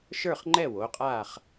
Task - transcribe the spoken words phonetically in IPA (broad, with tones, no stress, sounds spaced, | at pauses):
ʃ ə˞˥˨ χ ŋ͡ǃ ɛ˥˨ w oː˩˧˩ qʼ aː˥˨ χ